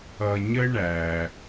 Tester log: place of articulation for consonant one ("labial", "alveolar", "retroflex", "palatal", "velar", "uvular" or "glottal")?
palatal